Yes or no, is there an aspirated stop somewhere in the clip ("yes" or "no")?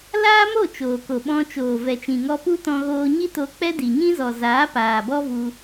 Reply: no